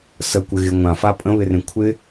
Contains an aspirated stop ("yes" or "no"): yes